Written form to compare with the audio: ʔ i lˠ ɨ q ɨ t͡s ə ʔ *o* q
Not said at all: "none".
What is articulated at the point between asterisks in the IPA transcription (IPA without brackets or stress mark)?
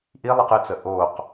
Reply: o